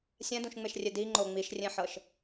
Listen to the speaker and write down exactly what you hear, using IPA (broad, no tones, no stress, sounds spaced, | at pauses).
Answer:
sʲ ɛ̃ d ũ ʃ ŋ͡m e ʃ rʲ e d i ŋ͡ǃ o ŋ͡m i ʃ rʲ ẽ ħ ɤ ʃ